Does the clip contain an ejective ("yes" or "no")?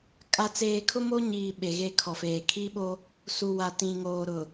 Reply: yes